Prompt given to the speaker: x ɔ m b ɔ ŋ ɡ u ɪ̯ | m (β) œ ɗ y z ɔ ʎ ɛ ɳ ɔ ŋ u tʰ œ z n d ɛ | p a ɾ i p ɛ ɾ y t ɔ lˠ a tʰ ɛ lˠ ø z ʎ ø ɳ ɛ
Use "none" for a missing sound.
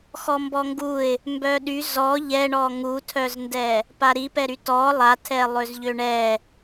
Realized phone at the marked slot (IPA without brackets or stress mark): b